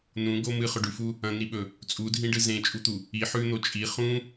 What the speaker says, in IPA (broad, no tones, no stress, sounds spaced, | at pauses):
n ũ ɡ o m ɨ χ ɵ ɖ ʉ f u | ɐ̃ n̪ i ɓ ɵ | t͡sʼ u dʱ ĩ ɖ ɨ z ẽ t͡ʃʼ u t̪ u | i ħ ʉ n̪ o t͡ʃʼ i χ ũ